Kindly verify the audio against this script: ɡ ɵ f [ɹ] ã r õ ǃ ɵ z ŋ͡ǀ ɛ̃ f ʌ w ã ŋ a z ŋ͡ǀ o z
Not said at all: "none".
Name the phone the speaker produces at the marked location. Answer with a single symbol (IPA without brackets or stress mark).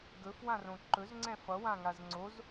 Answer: w